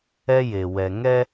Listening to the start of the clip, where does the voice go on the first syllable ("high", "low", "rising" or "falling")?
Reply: high